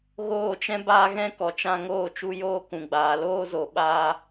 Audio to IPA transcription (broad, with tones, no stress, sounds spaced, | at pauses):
ɣ oː˦˨ t͡ʃ ɛ̃˦ b aː˦ ɣ ɛ̃˦ k ɔ˨ t͡ʃ ã˧ ŋ oː˦˨ t͡ʃ u˧ j oː˦ k ũ˨ ɡ͡b aː˨ l oː˦ z o˨ ɓ aː˧